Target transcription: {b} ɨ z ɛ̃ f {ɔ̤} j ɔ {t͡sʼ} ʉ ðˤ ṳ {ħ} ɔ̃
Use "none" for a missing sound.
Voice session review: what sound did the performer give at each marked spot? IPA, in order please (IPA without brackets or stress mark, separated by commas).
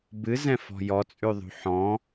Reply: b, ɔ̤, t͡sʼ, ħ